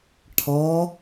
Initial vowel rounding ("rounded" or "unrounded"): rounded